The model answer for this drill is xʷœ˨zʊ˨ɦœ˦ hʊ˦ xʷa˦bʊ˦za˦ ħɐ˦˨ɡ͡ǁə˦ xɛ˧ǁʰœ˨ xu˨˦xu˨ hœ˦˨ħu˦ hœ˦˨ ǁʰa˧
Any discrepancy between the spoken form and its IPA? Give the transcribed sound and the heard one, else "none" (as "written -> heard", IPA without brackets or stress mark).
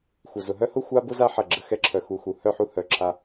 none